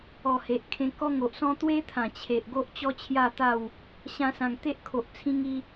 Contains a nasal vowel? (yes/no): yes